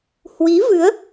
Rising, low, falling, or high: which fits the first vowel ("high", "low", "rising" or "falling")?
rising